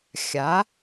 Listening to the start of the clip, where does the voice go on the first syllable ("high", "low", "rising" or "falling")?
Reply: rising